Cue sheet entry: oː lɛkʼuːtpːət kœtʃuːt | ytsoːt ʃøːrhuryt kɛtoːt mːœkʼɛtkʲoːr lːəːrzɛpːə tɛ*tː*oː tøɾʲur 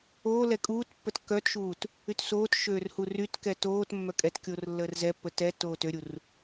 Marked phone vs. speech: correct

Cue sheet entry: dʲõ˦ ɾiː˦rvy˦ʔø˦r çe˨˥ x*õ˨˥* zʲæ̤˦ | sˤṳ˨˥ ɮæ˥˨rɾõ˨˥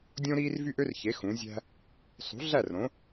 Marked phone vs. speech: incorrect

